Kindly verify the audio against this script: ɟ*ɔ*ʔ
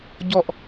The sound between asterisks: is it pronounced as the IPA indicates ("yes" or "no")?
yes